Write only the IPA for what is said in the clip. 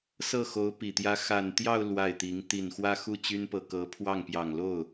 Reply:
s ɤ˥˩ x o˧˥ ʊ̯ p i˨˩ t̪ j ä˥ x a˨˩ n t̪ j ɑ˥˧ ʊ̯ l w a˥˩ ɪ̯ t̪ i˧˥ ŋ t̪ i˨˩ n x w ä˥ x u˥˩ t͡ɕ y˥ n p ɤ˨˩ k ɤ˧˥ pʰ w ɑ˥˩ ŋ p j ɑ˨˩ ŋ l o˥˩ ʊ̯

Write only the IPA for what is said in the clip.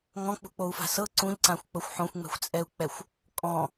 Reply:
ŋ ɔ̃ k͡p ṳ k͡p o u̯ f a̤ s ɤ ǀ ũ ʎ ǀ ã xʷ k͡p ɤ xʷ ħ õ xʷ ŋ͡m ɛ̤ xʷ t͡sʼ ɛ u̯ k͡p ɛ xʷ | kʼ ɔ̃

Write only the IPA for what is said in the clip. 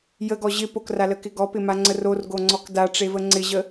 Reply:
j ə ɡ ɔ ʑ ɪ p o k r a l ə k ɪ ɡ ɔ p ɪ m a ŋ͡ǀ ə r o r ɡ o ŋ͡ǀ ɔ k d a ʈ͡ʂ e v ə ŋ͡ǀ ɪ ʑ ə

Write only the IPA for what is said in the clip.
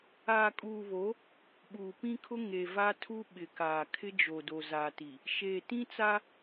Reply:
aː˨ kʼ uː˨ β o˨˦ | ɓ uː˨ p ĩ˦ kʰ ʊ˦ ŋ e˨ v a˦ tʰ u˦ ɓ ɪ˨ k aː˨ kʰ ɪ˦ d͡ʒ o˨ d o˨ z a˨ t i˨ | ʃ eː˨ t ĩ˦ t͡s a˦

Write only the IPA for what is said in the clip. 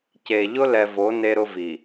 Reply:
c e˨ ʎ ʊ˦ l ɛ˨ v o˨˦ n e˦ ɾ ʊ˦ v i˨

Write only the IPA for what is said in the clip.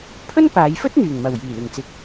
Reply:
pʰ ɵ˥ n p aː˨˧ j f ɵ˥ t̚ n̪ yː˨˩ ŋ m ɐ˨˩ w j iː˨˩ l ɪ˨˩ ŋ t͡s ɪ˨ k̚

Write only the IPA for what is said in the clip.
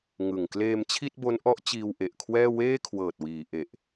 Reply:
ŋ ɯ˨˩ ŋ k l eː˧ m t͡ɕʰ i˥˩ t̚ b o˦˥ n ʔ ɔ˦˥ ʔ t͡ɕ iː˧ w ʔ e˨˩ ʔ kʰ w ɛː˥˩ w eː˥˩ kʰ w ɤː˨˩ t̚ w iː˩˦ ʔ e˨˩ ʔ

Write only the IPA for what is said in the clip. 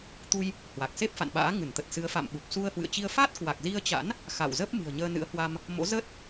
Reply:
t̪ u˧ j | h w a˨˩ k̚ s e˦˥ p̚ f a̰˧˨ n ɓ a̰ː˧˥ ŋ ɨ˧˩ n t̪ ə˨˩ t̚ s ɨ˨˦ ə̯ f a̰˧˨ m ɓ u˨˩ p̚ s u˧ ə̯ h w ɨ̰˧˨ ə̯ t͡ɕ i˧ ə̯ f a˦˥ t̚ k w a˨˩ k̚ z i˧ ə̯ t͡ɕ a̰˧˥ n | x a̰˧˨ w z ə˦˥ p̚ m ɨ̤˨˩ ə̯ ɲ əː˧ n ɨ̰˧˥ ə̯ h w a˧ m | m o̰˧˥ z ə˦˥ t̚

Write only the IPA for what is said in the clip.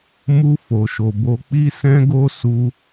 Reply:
m u˧ f o˨ ʃ o˨ b o˨ k͡p i˧ s ɛ̃˧ ɡ o˦ s u˧

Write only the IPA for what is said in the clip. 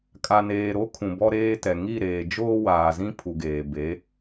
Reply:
kʼ a˨ n eː˨ ɾ o˦ kʰ ũ˨ b ɔ˦ ɾ eː˦ t ɛ˨ ŋ i˦˨ ɾ eː˨ d͡ʒ oː˦ w aː˨ z ĩ˦ pʰ u˨ ɡ eː˨ b e˨˦

